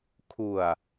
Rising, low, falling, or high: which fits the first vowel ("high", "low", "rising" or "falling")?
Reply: low